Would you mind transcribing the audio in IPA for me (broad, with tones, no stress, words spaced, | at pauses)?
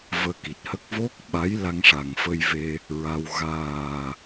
vəː˧ki˨˩t̚hə˦˥k̚ vo˦˥k̚ɓa˧˥j la˧ŋʂa˨˩ŋfə˧jve˧ | ɹa˧w ɣaː˨˩